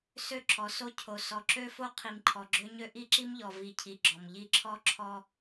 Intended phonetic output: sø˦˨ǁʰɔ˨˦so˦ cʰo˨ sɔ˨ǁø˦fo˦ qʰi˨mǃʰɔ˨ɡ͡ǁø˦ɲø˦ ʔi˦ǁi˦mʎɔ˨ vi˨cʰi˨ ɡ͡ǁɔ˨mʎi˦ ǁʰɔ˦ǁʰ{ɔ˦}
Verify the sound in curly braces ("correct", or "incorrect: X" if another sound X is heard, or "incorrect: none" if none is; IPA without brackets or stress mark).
correct